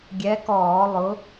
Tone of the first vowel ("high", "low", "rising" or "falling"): rising